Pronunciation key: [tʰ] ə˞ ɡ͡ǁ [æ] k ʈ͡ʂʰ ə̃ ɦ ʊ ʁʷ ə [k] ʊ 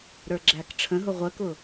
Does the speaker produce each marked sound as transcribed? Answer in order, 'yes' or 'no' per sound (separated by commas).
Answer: no, yes, yes